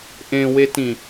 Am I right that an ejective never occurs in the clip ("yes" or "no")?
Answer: yes